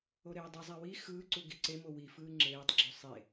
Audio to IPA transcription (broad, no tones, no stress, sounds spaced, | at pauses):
o ɾ eː dˤ u zˤ æ w i x ɯː ǀ u ɡ i ǀ e m o w i f ɯː ŋ͡ǁ eː tˤ ɡ͡ǁ u sˤ e